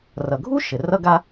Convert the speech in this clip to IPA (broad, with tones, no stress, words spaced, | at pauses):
rʌ˩ɡʱu˥ ʃɘ˩rʌ˥ɡa˥